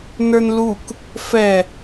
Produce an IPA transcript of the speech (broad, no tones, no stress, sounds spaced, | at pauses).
n ə˞ n l u k | f ɛ